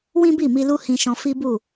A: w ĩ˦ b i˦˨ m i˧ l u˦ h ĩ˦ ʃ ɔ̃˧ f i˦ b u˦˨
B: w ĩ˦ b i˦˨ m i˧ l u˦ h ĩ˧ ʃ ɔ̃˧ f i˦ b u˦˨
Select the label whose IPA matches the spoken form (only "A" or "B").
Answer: B